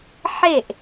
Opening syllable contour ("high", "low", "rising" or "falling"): falling